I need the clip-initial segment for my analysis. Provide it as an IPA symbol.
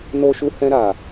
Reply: n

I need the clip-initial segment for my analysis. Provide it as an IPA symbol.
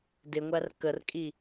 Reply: d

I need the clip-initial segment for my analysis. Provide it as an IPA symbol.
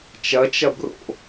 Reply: t͡ʃ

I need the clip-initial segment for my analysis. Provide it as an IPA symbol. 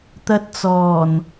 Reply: t̪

